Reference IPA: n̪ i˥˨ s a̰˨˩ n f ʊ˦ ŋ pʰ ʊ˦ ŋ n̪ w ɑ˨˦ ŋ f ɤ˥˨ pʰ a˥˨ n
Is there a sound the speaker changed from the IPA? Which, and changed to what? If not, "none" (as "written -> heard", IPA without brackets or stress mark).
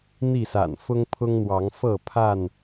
none